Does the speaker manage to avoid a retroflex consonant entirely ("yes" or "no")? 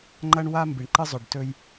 no